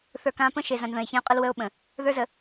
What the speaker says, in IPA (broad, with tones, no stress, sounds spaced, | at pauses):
θ ə˞˨ k ã˨˦ p ə̃˦ ʃ e˨ z ã˨ n ð ə̃˨ e̯ ç ẽ˦ o̯ qʼ ə˦ l w ə˦ o̯ ɓ ə̃˨ | ð ə˞˦ z ə˨